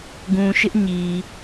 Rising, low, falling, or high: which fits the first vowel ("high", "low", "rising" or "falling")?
low